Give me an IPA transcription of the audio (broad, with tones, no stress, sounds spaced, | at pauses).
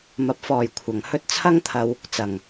m ɐ˨ p̚ f ɔː˨ j kʷʰ ɐ˨ ŋ h ɵ˥ t̚ t͡sʰ ɐ˥ ŋ t̪ʰ ɐ˧ w | t͡s ɐ˨ ŋ